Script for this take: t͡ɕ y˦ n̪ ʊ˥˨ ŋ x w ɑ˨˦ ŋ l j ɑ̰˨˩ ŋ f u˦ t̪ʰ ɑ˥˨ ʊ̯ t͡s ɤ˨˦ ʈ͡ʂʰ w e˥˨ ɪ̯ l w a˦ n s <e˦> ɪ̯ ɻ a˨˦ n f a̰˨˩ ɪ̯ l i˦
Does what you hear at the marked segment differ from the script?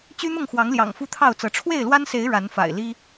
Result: yes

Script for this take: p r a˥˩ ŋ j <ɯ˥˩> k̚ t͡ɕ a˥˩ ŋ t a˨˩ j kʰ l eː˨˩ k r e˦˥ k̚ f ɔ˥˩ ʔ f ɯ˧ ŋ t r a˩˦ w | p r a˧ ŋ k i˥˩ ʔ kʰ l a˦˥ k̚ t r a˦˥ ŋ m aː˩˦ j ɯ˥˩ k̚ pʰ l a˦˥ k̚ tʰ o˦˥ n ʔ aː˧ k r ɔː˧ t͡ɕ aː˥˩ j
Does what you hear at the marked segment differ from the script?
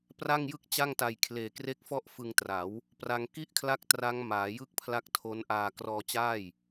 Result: no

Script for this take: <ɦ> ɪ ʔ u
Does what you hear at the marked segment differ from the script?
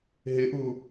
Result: no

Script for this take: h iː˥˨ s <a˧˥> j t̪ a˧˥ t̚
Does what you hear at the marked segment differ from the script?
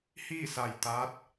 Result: yes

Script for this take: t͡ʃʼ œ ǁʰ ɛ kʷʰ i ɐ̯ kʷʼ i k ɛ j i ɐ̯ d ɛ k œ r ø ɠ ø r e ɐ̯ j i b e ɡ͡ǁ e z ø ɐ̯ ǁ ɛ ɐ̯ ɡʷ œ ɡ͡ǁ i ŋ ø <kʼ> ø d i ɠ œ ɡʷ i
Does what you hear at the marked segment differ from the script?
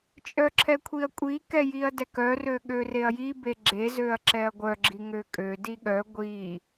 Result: no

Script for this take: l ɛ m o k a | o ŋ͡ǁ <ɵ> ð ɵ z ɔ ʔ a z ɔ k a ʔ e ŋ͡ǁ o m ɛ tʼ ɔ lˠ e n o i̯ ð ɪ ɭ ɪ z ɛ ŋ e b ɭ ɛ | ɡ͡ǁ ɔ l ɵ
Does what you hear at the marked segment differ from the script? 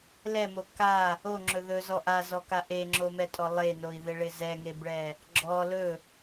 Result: no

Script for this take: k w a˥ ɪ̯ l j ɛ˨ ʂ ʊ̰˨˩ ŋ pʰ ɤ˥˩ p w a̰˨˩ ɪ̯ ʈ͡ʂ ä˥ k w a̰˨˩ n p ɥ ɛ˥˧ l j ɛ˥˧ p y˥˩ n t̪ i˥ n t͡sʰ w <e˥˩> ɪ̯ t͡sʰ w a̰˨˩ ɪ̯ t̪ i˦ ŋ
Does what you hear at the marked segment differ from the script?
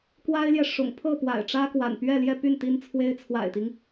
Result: yes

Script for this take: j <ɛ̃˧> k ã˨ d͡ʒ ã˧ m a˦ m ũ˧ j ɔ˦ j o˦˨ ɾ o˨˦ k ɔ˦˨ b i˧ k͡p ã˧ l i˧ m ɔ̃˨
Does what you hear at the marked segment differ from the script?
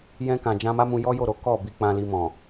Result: no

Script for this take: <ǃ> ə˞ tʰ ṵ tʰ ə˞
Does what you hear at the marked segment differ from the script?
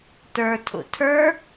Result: yes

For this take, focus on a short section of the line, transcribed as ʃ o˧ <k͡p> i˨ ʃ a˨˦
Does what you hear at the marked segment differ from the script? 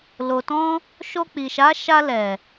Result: no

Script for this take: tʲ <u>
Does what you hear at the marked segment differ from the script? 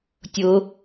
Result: yes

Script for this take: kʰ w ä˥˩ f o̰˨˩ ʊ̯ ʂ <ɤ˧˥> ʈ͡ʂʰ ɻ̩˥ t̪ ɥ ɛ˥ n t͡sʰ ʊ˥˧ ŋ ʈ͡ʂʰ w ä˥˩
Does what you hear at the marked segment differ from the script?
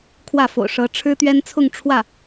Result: no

